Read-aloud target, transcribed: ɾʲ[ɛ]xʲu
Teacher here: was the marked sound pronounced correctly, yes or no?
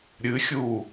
no